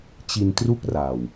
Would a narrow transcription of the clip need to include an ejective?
no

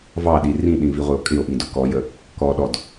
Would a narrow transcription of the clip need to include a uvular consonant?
yes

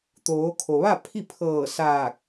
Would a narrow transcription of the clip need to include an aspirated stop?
yes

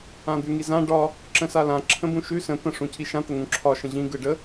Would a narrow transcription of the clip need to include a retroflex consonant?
yes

